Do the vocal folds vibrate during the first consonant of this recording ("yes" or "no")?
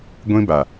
yes